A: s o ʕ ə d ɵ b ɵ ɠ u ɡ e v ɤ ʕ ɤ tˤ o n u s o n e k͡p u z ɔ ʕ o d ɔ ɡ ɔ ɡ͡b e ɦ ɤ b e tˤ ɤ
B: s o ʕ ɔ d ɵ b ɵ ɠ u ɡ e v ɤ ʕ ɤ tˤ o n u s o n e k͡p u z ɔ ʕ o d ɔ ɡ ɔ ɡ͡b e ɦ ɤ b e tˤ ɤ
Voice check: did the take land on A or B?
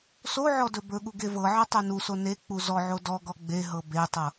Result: B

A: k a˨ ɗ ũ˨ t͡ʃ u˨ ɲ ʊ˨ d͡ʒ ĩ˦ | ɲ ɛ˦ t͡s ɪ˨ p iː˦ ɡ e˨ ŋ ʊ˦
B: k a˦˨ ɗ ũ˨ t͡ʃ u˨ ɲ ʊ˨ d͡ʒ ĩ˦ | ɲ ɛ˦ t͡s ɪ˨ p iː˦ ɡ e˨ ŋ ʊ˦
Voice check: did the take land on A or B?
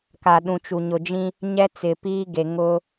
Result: A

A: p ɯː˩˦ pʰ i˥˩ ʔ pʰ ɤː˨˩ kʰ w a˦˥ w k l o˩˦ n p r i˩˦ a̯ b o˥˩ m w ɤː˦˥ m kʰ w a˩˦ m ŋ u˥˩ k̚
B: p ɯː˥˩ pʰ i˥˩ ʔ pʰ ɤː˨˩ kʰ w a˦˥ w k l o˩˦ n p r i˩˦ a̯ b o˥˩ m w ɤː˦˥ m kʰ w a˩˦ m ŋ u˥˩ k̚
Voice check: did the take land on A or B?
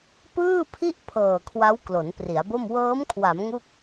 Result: B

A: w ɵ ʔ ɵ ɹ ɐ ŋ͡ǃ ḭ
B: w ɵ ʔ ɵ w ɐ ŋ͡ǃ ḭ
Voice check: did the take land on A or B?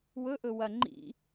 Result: B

